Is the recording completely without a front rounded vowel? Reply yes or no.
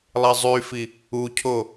no